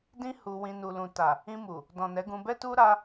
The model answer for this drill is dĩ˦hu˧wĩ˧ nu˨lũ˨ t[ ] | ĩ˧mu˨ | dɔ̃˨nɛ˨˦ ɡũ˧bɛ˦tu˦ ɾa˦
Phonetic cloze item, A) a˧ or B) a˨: B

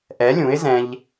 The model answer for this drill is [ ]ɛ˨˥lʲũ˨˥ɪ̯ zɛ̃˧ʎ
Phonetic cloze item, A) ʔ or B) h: A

